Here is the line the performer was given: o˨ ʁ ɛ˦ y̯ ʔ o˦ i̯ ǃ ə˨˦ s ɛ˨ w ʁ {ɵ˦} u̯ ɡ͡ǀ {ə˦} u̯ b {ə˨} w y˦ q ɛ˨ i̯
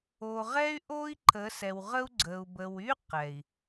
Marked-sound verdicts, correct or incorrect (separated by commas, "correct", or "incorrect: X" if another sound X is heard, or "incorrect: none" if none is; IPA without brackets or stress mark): incorrect: ə˦, incorrect: ə˨, correct